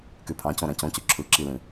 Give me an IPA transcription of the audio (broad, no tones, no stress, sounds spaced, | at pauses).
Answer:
k y pʰ ɑ̃ c õ ɾ æ̃ c õ c y ǁʰ ɯ ǁ i l ĩ